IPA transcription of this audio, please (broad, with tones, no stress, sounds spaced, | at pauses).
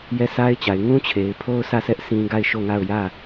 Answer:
j ɛ˦˨ s a˦ ɪ̯ t͡ɕ a˨ ɪ̯ ŋ ũ˦ t͡ɕʰ e˨ ɪ̯ pʰ o˦ ʊ̯ sʰ ä˦˨ s ɛ˦ ʔ s ĩ˦ ɡ a˦˨ ɪ̯ ʃ o˦˨ ŋ a˦˨ ʊ̯ j ä˦˨